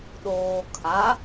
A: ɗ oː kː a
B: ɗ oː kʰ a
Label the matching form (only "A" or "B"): B